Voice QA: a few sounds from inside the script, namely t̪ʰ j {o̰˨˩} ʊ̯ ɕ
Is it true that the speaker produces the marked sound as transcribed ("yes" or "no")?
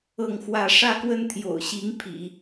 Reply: yes